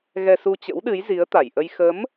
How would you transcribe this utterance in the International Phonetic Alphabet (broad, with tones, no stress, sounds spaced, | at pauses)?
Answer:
ɣ ɛ˧ s u˧ t͡ɕ ə̰˧˥ w ɗ ɨ˨˦ j z i˨˦ ə̯ t̪ a˧˩ j ʔ ə˧ j x ə˨˦ m